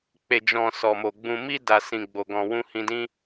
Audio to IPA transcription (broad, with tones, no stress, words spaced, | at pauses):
k͡pe˨d͡ʒɔ̃˨ sɔ˨mo˨ ɡ͡bũ˨mi˧ da˨sĩ˨ ɡ͡bo˨ɡɔ̃˨wũ˧ hĩ˧dĩ˦